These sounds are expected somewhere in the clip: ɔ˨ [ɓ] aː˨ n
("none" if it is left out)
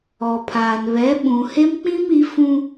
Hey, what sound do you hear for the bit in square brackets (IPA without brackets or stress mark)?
pʰ